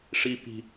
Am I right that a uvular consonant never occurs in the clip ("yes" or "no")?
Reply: yes